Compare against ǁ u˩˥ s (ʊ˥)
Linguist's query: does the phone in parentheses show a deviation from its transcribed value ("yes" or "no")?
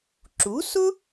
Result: no